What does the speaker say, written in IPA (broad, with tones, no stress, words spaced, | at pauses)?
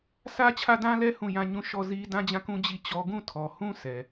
sʰä˦t͡ɕʰä˦˨dã˦lɛ˦ hũ˦˨ jã˦˨ɲũ˦˨ ʃɔ˦˨zi˦ dã˦d͡ʑã˦˨kũ˦ d͡ʑi˦˨t͡ɕɔ˦ ɡũ˦˨tʰɔ˨hũ˦ sʰɛ˨